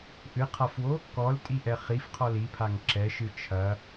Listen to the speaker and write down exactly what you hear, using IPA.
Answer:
ʔ ɨ qʰ a f w o | k ɔ l tʼ i ʔ ɛ χ i f qʰ ɔ l i pʰ a ŋ ǁ ɛ ʃ ɨ t͡ʃʰ ɐ

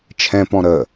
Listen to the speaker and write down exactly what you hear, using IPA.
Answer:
t͡ʃʰ ɛ̃ p ɔ̃ ɾ ə

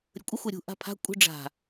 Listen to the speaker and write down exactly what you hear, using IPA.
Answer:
ɾʲ ə kʷʼ ə xʷ ɛ ɾʲ ṳ ʔ a̤ pʰ a̤ kʷʼ ə̤ ɖ͡ʐ a̤

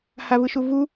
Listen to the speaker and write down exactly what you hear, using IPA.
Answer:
h a v ɯ ʃ u v u

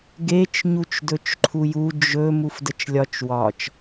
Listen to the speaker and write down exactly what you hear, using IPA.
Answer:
ɡ e t͡ʃ ɲ u t͡ʃ d ɵ t͡ʃ ǃʰ u j u d͡ʒ ɵ m u f d ə t͡ʃ lʲ ɒ t͡ʃ w ɒ t͡ʃ

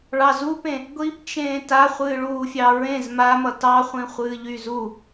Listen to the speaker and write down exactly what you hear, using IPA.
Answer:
ɭ ɑ z u p ẽ | ɡʷ i p t͡ʃ ẽː t a χʷ ɨː ɭ uː fʲ ɑ ɹ ẽ z m a m ʌ t ɑ χʷ ĩ χʷ ɨː ʎ y z u

